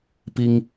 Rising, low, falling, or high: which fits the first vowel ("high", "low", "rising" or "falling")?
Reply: high